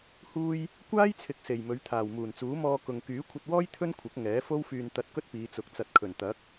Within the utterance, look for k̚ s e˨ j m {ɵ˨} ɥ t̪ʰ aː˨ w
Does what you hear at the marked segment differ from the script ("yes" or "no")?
yes